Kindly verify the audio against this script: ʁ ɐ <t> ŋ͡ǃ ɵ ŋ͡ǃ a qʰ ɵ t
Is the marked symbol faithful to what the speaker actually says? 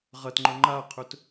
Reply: yes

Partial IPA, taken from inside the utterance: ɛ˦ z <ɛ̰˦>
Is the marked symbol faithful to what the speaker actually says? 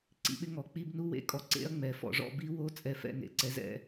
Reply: yes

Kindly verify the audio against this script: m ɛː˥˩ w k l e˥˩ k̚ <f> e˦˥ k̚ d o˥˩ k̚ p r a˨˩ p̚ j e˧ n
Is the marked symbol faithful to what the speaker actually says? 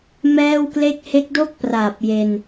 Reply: no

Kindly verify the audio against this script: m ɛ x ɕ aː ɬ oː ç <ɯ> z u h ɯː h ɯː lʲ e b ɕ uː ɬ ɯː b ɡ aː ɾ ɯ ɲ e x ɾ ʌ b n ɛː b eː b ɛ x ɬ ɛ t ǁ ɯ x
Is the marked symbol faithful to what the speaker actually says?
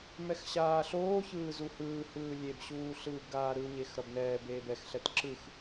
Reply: no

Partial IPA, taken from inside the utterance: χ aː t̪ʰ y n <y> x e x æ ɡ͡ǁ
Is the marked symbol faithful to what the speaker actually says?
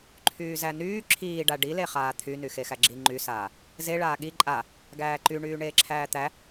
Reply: yes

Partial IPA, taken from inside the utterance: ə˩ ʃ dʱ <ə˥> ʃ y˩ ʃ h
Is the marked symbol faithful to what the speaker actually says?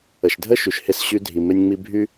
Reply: yes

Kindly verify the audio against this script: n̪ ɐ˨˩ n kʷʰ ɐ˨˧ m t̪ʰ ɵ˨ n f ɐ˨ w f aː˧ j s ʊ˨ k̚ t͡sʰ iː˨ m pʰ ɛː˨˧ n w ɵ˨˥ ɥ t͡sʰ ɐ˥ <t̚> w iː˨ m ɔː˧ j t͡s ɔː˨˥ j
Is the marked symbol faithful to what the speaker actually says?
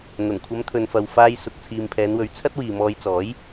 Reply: yes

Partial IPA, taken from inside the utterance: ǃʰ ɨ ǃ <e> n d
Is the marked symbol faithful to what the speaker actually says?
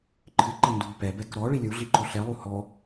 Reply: no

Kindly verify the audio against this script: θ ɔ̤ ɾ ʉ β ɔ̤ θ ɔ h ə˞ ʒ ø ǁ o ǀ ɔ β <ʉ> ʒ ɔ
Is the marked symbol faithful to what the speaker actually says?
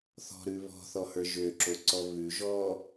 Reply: yes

